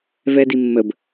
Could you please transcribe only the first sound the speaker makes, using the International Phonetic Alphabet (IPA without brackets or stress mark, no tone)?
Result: v